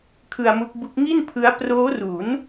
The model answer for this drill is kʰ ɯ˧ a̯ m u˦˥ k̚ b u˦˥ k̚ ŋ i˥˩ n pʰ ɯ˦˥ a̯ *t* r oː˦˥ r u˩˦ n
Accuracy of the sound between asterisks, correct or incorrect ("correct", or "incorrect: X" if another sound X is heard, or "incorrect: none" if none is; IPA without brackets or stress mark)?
incorrect: p